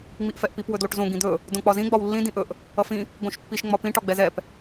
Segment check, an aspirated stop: absent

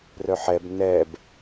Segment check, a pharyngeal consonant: present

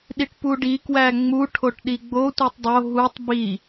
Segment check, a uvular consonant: absent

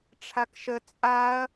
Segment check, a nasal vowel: absent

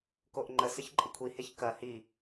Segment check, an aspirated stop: present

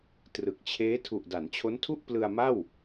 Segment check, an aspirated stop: present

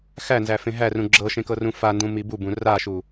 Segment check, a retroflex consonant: absent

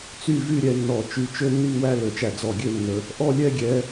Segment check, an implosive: absent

